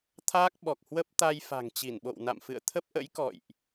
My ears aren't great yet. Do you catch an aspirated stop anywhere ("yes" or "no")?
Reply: yes